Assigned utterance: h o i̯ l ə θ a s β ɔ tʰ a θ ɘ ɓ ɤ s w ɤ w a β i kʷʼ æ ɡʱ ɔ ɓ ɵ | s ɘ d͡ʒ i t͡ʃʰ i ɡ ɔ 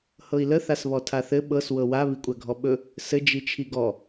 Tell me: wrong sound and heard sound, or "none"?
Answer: o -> ɤ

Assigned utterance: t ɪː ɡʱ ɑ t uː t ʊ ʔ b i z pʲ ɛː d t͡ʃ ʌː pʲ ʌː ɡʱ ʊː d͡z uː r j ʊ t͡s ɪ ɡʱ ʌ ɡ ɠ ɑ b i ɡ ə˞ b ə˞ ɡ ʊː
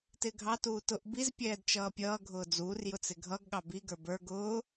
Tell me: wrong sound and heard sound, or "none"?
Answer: none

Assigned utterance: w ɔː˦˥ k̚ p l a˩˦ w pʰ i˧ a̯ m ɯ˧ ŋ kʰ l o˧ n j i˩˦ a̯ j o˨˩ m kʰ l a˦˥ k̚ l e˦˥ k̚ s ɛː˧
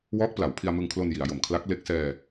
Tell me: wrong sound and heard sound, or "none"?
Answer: none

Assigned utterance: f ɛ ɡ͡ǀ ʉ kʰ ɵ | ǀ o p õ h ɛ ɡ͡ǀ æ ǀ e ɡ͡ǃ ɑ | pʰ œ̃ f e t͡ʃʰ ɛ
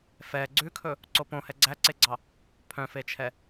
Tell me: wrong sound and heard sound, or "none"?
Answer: ɡ͡ǃ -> ɡ͡ǀ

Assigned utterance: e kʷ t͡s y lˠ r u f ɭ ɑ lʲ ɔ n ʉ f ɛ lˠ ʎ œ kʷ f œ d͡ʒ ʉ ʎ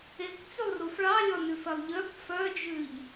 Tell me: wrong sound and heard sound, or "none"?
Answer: none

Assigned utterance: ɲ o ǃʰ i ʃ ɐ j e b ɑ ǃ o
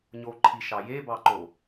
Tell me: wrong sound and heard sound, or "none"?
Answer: ɐ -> ɑ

